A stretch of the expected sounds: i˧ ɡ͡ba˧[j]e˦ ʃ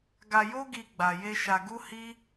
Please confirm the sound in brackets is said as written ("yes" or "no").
yes